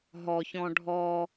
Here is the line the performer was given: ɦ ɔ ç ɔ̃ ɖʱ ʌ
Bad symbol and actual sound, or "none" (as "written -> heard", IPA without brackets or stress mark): ʌ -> ɔ